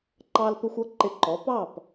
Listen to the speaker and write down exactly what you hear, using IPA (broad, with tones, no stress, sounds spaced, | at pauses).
ǃ ɑ˧ l p ɪ˧ xʷ ʌ˨˦ ǃ ɪ˧ ǃ ɔ˨˦ p ɑ˦˨ p